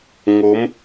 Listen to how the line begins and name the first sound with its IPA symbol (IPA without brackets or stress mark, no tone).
ŋ